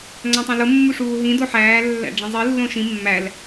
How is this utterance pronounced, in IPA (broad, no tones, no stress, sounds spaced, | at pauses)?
ŋ͡ǀ æ̃ tˤ õ l o mː u ʂ uː ɦ ĩ d o ħ æː lː æ̰ ɖ͡ʐ ĩ zˤ i lː õ ʃ ĩ mː æ l